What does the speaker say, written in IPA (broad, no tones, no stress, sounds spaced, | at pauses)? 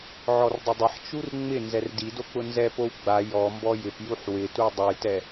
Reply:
ʕ ɔ r dˤ ʊ dˤ ɪ ħ t͡ʃ u r ŋ͡m ɪ n z ɛ r d i d o k͡p ʊ n z ɛ p o w ɡ͡b a j ɔ m b ɔ j ɪ p j u ħ w ɪ t u dˤ ʊ j t ɛ